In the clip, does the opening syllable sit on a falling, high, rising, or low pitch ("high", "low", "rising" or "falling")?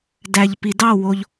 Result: low